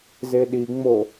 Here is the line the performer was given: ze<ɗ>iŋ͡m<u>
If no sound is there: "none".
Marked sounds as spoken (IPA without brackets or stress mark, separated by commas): ɗ, o